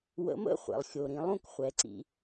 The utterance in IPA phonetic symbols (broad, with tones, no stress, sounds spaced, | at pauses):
w ə̰˨˥ m ə̰˥˨ χʷ ɛ̰˩ lˠ xʲ o˩ ɾ ĩ˩˧ lˠ ũ˥˨ k χʷ ɛ˩˧ ǀ ḭ˩˧